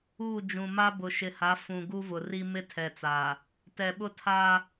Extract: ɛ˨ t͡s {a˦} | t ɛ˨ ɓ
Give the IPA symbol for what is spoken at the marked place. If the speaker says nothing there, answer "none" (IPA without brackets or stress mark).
a˨